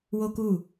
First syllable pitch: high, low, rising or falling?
high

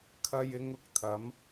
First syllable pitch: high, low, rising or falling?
low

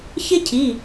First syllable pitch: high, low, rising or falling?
high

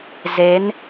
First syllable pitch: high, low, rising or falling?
rising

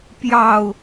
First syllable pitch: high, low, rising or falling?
low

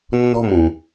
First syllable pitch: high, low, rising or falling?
falling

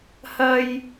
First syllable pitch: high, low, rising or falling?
high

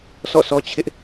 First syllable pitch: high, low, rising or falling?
falling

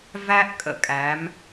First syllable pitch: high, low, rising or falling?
high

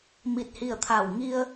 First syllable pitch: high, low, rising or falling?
falling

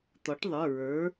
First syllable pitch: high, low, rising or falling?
rising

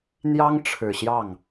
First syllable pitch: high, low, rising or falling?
high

